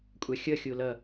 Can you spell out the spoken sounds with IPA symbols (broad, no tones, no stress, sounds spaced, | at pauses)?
kʷʼ a xʲ ʌ xʲ o l ʌ